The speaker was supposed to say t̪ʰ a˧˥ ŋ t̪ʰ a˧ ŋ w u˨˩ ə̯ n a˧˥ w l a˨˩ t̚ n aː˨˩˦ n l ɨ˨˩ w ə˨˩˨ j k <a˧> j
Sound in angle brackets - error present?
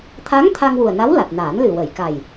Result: yes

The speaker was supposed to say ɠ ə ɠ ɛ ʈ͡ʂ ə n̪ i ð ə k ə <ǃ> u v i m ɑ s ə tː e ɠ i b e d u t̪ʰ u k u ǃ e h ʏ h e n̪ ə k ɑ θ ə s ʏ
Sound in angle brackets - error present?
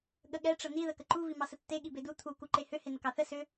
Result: no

